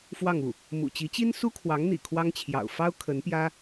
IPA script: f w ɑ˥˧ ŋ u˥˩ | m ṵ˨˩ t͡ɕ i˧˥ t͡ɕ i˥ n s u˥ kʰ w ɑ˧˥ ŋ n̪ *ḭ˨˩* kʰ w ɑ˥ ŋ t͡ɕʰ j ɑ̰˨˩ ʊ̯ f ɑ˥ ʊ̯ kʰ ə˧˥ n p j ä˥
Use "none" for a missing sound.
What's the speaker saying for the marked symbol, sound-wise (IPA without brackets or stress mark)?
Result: ḭ˨˩